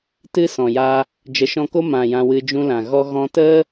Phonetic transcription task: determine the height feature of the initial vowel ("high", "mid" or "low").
high